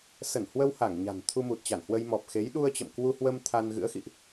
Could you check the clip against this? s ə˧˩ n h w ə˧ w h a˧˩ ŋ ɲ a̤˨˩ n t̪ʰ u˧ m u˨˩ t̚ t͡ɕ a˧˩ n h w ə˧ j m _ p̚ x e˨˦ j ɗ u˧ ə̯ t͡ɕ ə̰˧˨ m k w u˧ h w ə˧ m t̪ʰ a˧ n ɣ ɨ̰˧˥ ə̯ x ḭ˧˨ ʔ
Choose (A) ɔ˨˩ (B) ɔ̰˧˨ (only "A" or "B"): A